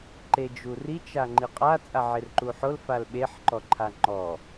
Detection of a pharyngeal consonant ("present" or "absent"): present